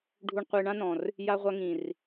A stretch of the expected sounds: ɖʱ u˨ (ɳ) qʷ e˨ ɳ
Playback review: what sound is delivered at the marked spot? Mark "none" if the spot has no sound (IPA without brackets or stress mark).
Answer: ɳ